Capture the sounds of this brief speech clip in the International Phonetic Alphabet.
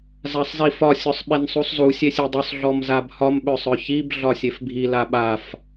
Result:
z a sˤ z i f ɒ sʲ ɔ sˤ ɓ e n sˤ u sˤ z u sʲ e sʲ e dˤ œ sˤ ɮ ɔ m z a b h ɒ m ɓ œ sˤ œ ç i b ɮ ɒ sʲ e f bʱ i l a ɓ a f

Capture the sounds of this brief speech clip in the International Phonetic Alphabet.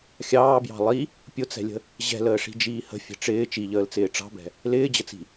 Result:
xʲ ɑː b j ɑ̤ lˠ i | pʲ ʊ t͡s ɛ̤ lʲ ə̤ | ʑ ɛ̤ l əː ʂ i̤ d͡ʒ iː h ə̤ fʲ ɛ̤ ʈ͡ʂ ɪː t͡ʃ i ʎ əː l t͡s ɪː ʈ͡ʂ ɑ̤ b ɛ̤ | l ɪː d͡ʑ ə t͡s i̤

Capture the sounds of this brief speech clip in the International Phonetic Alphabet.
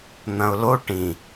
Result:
n̪ ɐ̃ ʊ̯ l o ʈ ĩ

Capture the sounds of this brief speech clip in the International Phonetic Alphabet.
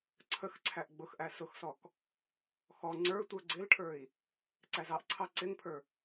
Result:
ǀʰ ə x ǀʰ æ ʔ ɡ͡b ʊ x ʔ æ s ʊ x s ɔ k | x ɔ ŋ͡ǀ ə˞ tʷ ə˞ ɡ͡ǀ ɪ l ʈʰ ə˞ i̯ | ǀ æ z ɑ ʔ ǀʰ ɑ ǀ ɪ ŋ pʰ ə˞

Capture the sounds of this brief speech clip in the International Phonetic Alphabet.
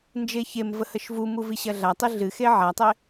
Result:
n d͡ʒ e ç e m v ə h ə ʃ v u m u v i ɕ ɐ ɮ a tˤ i ɮ ɨ x e ʕ a tˤ e

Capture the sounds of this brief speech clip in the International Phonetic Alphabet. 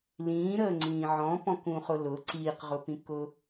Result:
l ĩː ɾ əː ŋ͡ǀ ĩː ʕ ɔ̃ p ɔ̃ k ũ χ ʊ l ʊ ǀ iː q ʁ ʊ p ĩ k ʊ

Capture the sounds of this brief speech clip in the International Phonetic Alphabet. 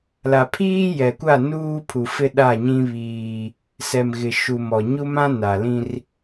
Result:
l a˨ pʰ iː˦ j ɛ˨ kʷ a˦˨ n uː˦ pʰ u˨ f ɪ˦ ɗ a˦˨ ɲ ĩ˦ β iː˦ | s ɛ˨ m ɣ ɪ˨ ʃ u˨ m ɔ˨ ɲ u˦ m ã˦ n a˨ l ĩ˦ r

